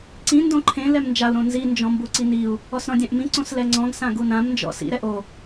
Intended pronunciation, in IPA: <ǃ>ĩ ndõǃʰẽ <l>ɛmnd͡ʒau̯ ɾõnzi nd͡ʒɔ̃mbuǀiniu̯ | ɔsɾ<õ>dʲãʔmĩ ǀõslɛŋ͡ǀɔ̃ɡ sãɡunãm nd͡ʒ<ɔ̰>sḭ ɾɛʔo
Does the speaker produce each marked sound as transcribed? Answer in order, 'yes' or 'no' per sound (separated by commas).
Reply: no, yes, no, yes